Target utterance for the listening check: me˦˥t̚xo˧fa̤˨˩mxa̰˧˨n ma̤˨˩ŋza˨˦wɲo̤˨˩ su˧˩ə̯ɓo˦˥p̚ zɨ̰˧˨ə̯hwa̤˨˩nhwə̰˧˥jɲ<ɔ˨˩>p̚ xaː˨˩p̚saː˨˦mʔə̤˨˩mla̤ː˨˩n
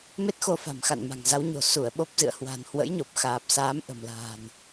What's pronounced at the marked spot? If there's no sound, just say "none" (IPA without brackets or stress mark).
o˨˩